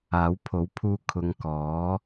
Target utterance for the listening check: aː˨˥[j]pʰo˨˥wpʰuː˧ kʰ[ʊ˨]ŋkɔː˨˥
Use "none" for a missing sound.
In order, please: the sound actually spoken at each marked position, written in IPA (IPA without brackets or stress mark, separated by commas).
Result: w, ʊ˨˧